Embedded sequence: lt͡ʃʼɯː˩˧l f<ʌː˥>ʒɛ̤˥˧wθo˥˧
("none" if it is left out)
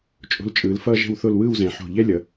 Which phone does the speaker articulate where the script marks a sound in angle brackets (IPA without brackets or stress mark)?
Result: ʌː˥